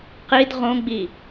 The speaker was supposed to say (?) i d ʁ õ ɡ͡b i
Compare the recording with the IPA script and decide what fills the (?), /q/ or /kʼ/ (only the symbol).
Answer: q